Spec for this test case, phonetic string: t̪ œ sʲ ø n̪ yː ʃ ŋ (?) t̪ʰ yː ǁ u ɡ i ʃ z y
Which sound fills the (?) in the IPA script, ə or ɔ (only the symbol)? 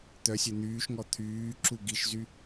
ɔ